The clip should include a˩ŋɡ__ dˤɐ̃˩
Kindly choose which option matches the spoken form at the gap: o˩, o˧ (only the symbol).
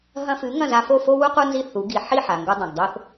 o˧